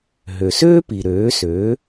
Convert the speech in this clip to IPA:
ɦø˩søː˥pi˩ ɾøː˩˥sø˩˥

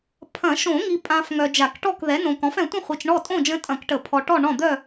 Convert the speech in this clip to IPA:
pʰɐ̃˨˩˦ ʃõ˨˩˦ŋi˨pʼã˨f ŋœ˨d͡ʒa˨˩˦kʈɔ˥˨k ðɛ˩˥ nõ˨kɔ̃˩˥f ɛ̃˨tʷə̃˥˨χʷi˨t͡ʃ ɳɔ˥˨tʼõ˥˨d͡ʒə̃˧˥ tʼɐ̃˨˩˦kʈə˨˩˦ pʰɔ˨ʈɔ˥˨ ɳɔ̃˥˨ d̪œ˥˨

